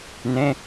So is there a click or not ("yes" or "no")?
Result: no